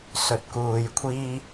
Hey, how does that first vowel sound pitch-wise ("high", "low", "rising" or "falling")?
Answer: low